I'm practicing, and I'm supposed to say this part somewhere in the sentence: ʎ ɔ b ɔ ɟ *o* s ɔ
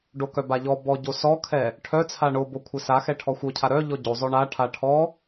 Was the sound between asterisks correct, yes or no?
yes